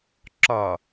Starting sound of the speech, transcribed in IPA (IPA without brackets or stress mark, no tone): ǁ